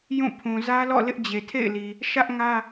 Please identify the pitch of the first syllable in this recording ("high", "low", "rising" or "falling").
falling